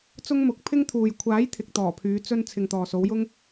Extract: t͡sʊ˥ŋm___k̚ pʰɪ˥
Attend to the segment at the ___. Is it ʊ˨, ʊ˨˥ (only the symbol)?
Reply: ʊ˨˥